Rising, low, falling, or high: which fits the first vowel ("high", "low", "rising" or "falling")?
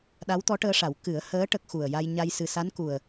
rising